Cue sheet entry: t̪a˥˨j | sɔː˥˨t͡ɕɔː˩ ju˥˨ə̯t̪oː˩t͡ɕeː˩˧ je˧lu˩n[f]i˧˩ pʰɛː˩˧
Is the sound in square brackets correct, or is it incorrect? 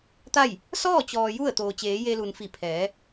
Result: correct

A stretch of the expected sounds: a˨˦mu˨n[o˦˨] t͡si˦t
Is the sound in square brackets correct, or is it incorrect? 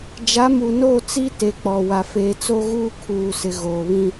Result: correct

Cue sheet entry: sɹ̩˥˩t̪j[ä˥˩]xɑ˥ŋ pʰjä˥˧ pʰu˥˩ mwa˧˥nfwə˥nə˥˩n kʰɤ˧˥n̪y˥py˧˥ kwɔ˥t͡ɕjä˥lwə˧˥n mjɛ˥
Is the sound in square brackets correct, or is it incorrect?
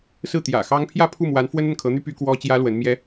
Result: incorrect: ä̰˨˩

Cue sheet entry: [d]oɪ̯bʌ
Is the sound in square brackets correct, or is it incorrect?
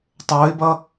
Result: incorrect: tˤ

